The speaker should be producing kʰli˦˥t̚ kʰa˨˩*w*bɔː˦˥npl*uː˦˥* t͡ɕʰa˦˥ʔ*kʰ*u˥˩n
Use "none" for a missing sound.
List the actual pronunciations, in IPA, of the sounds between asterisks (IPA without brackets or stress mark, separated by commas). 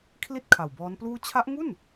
w, uː˥˩, ŋ